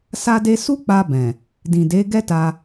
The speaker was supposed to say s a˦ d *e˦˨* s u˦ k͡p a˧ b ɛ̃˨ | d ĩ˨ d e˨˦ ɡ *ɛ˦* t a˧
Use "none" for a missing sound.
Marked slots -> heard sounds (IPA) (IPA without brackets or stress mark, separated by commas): e˦, ɛ˦